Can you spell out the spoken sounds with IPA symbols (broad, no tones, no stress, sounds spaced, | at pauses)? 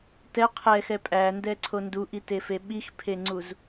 t ɛ qʰ ɛ x ɛ pʼ æ n d ɛ ǀʰ o n d u ʔ i t e f e ɓ i x pʰ e ŋ͡ǀ u z